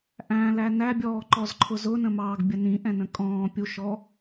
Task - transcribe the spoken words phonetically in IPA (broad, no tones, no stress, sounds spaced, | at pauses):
ʔ æ̃ l æ n æ bʲ ɔː ǃ ɔ z ǃʰ ʊ z ʊ n ə̃ m ɑː ɡ bʲ ə n ĩ ʔ ɛ̃ n ə̃ kʼ ɔ̃ː pʲ u ʃ ɔ